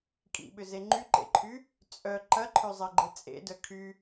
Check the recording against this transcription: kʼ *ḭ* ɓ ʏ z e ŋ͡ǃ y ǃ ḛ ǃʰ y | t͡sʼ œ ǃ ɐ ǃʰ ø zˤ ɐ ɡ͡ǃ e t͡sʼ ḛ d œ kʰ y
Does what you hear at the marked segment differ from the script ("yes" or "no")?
no